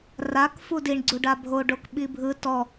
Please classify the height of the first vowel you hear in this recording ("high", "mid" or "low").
low